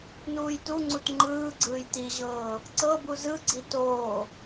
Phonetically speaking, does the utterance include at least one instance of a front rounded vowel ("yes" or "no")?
no